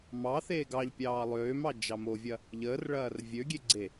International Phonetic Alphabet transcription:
m ɑ θ eː ɡ ɑ ʎ pʲ ɑː lˠ øː m ɑ d͡ʒ ɑ m o vʲ ɐ | ʎ əː r ɭ ɐː r vʲ ø ɡʲ e ɡ͡ǀ e

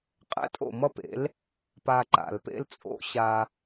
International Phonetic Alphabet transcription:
qʼ ɛ̰˥ tʼ o̰˥˩ m ʌ˥ p ḛ˩˥ l | p a˧ ǃ a̰˩ l p ḛ˧ l t͡sʼ o̰˧ ɕ a˧

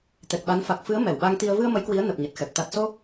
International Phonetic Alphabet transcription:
t̪ ɛ˨˩ k̚ ɓ a˨˦ n f a˨˩ k̚ f ɨ˨˦ ə̯ m ɛ˧˩ w ɓ a˧ ŋ t̪ i˧ ə̯ v ɨ˧ ə̯ m ə˨˦ j k w i˨˦ ə̯ n ə˨˩ p̚ ɲ ə˨˩ t̚ x ɛ˨˩ p̚ t̪ a˨˩ t̚ s o˧

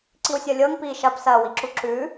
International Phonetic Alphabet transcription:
ǀ i w sʲ ʌ lʲ ɤ ŋ p i ʃ ɐ p s ɐ w i ǁ u ǁ ʉ

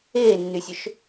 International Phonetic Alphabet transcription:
eː nː y sʲ ɵ ʃ

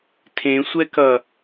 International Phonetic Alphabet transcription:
tʰ ẽ sʷ ɛ k ʌ

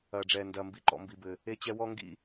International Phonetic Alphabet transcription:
ɐː˨ ɖ͡ʐ ɛː˨ n d ɐː˨ m b i˨ ǃ ɔ̰˨ m b i˨ b ɘ˨ | e˦ t͡ɕ ɛ˦ w ɔ˦ ŋ ɡ ḭ˦

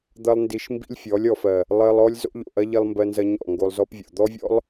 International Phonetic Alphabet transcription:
d̪ ɐ˦ lˠ n d i˧ ʃ m b ḭ˦ lʲ fʲ ɔ˨˦ lʲ ɔ˨ f ɜ˨ | lˠ ɜ˧ lˠ ɔ˦ lʲ z o̰˦ ʎ o̰˨ ʔ ɐ˦ ʎ i˧ lˠ m b ɜ˧ n z ɐ˧ ɲ ɔ̰˦˨ ŋ ɡ o˧ lˠ z ɔ˦ p vʲ o̰˨ d̪ ɔ˦ vʲ ɔ̰˦ lˠ

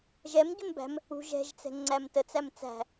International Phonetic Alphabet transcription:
ʒ ɛ m ɟ u m b æ̤ m | ṳ ʒ ɛ̤ ʒ t͡s ɛ̤ ŋ͡ǀ æ m t ə t͡s æ m t͡s æ̤

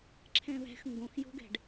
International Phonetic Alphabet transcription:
ǁʰ ɛ̃ β ɛ̤ x ŋ ɡ õ x j o̤ ɡ ɛ̤ ɖ

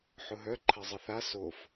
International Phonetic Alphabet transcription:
ħ ʊ ɦ œ ǃʰ ɐ zˤ ə θ a s o f

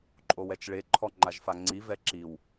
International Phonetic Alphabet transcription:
ǃʼ o w ɛ t͡ʃ ɭ e ǃʰ ɔ ŋ͡ǃ a ʒ f a ŋ͡ǀ i v ɛ ǁ i w

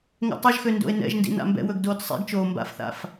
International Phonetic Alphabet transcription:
ŋ ɛ̰ tˤ ɵ ʒ x ø n d o̰ e̯ n ɛ̰ ʒ n d ḭ n a̰ m b ɛ̰ w ɵ ɡ d oː t sˤ ḭ ɡ t͡ʃ oː m b a̰ f θ a̰ f

